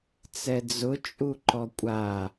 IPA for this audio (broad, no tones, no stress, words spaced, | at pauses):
t͡sɛd͡zʊ t͡ʃʼuǃɔkʷʼa